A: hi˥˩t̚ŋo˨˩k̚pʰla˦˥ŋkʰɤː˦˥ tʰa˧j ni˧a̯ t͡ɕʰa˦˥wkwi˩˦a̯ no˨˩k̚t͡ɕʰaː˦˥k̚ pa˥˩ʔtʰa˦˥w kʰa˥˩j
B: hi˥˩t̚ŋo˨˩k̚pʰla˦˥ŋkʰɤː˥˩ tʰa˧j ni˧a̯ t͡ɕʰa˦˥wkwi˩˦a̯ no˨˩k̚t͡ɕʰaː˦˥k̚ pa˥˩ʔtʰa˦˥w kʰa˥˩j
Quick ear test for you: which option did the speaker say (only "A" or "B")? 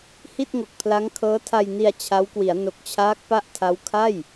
A